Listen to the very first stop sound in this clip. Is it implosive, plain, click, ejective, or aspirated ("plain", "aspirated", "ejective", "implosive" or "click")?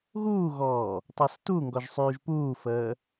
plain